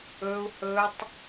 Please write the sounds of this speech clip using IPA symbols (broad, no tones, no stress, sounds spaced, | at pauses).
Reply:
ɵ u̯ h ɵ tˤ